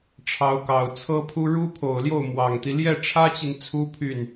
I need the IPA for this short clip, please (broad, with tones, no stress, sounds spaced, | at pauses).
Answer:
ʈ͡ʂʰ ɑ˧˥ ʊ̯ k ɑ˨˩ ʊ̯ t͡sʰ ɤ˥ pʰ u˥ ɻ u˥ pʰ o˨˩ ʊ̯ l j o˥˩ ʊ̯ m w ɑ˨˩ ŋ t̪ i˦ l j ɛ˥˩ ʈ͡ʂʰ ä˥ t͡ɕ i˨ n t͡sʰ u˥ pʰ y˥˩ n